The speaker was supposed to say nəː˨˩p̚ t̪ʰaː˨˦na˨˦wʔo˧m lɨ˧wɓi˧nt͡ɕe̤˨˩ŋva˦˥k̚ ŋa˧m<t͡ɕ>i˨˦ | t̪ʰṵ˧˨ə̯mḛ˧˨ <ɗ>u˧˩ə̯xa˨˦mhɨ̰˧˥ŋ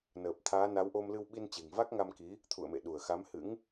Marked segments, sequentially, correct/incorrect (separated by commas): incorrect, correct